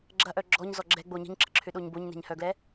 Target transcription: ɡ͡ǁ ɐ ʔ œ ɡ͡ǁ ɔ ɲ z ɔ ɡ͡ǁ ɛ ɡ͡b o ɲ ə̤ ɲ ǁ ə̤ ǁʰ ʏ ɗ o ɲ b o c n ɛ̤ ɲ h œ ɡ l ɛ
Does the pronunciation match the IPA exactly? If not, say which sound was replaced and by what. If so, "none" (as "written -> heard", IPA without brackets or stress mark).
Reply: c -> ɲ